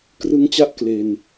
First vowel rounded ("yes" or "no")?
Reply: no